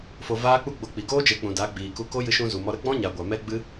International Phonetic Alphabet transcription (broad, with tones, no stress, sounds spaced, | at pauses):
f o˧ v aː˦ k͡p u˦ ɡ͡b o˧ k͡p i˨ ɡ oː˦ d͡ʒ e˨˦ k͡p ũ˨ d a˨˦ ɡ͡b iː˨ k u˧ k o˦ j ɨ˧ ʃ ũ˧ z u˨ m ɔ˧ ɾ ə˦ ɡ͡b ɔ̃˦ ɲ a˨ ɡʷ a˨ m ɛ˦ ɡ͡b ɨ˦